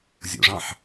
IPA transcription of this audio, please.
zʲ o̰ ʐ ɑ̃ ħ

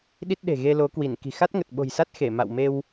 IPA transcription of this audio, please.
ɗ i˦˥ t̚ ɗ e̤˨˩ ɣ e˧ l o˨˦ k w i˧˩ n k i̤˨˩ x a˦˥ t̚ ŋ ə˨˩ t̚ ɓ o̤˨˩ j s a˦˥ t̚ x e˧˩ m a̰˧˨ w m e˧ w

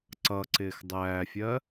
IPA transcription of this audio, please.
ǀ ʌ ǀ ɪː x dˤ æː fʲ ɜ

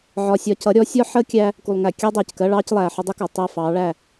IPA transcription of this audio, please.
ʕ ɒ˨ sʲ ɒ˨ c ʌ˨˦ ɾʲ ɔ˨˦ sʲ ɒ˦ ħ əː˦ kʲ æ˦ | k u˨ lˠ ŋ æ˨ kʲ ɑ˦ dˤ ɛː˨ c k ɜ˦ ɭ ɑː˦ c lˠ æː˨ ħ ɒ˦ dˤ ə˦ k ɒ˨ tˤ æ˦˨ f ɑː˨˦ ɭ æ˦˨

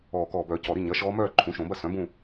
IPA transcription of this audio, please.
ɔː˨˩ k ɔː˨˩ b œ˨˩˦ c ɔ˨˩ ɾ i˥˨ ɲ ɐ˩˥ ʃ ɔː˧˥ m œː˥˨ ǃʰ ũ˩˥ ʃ õ˨˩˦ b ɐ˥˨ s œ̃˩˥ b ũ˥˨

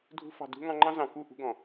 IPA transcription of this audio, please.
dʱ ṳ˧ f ɑ̤˨ d ṳ˧ ŋ ɑ̃˧ ŋ͡ǃ ɑ̃˦ z ɑ̃˨ k u˦˨ ʔ ṳ˧ ɡ ɔ̃˨

